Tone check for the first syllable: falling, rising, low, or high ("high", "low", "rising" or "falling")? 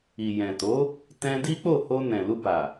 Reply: low